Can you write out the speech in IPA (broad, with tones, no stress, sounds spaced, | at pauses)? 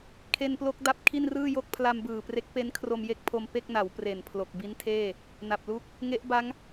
kʰ e˧ n p l o˦˥ k̚ d a˦˥ p̚ kʰ i˥˩ n r ɯː˥˩ j o˥˩ k̚ pʰ l a˧ m b ɯː˨˩ p r e˦˥ k̚ p e˦˥ n kʰ r o˧ m j e˥˩ k̚ pʰ o˧ m p e˥˩ k̚ n a˩˦ w p r e˨˩ n pʰ l o˨˩ k̚ b i˦˥ n tʰ eː˥˩ | n a˨˩ p̚ l u˥˩ k̚ | ŋ e˦˥ ʔ b a˦˥ ŋ